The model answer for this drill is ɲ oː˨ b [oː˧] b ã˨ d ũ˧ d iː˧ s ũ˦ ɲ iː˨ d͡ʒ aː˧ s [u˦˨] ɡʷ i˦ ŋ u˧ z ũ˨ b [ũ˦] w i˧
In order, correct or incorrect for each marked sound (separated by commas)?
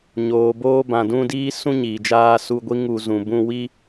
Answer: correct, incorrect, incorrect